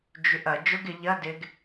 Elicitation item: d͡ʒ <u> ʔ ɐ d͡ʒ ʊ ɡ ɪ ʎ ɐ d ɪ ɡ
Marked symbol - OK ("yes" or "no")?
no